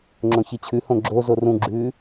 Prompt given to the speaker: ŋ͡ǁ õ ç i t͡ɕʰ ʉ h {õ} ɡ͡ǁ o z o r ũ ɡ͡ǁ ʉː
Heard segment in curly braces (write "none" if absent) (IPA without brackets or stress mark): õ